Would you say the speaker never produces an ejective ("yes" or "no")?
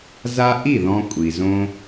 no